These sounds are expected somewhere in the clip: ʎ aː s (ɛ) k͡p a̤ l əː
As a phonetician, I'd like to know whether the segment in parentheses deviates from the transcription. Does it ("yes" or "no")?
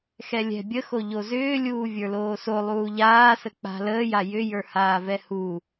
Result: yes